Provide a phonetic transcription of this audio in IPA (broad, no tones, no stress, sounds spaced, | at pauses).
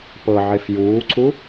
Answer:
p ɤ ʕ e f j uː ǀ u